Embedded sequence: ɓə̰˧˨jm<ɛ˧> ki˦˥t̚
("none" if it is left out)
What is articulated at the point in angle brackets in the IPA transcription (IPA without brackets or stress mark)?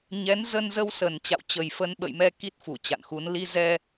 ɛ˧